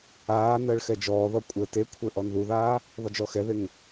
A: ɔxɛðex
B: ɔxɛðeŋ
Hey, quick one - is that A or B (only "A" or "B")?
B